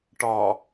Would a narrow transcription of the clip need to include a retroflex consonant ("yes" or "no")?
yes